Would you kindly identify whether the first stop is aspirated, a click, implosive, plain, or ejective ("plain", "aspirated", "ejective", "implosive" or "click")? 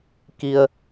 plain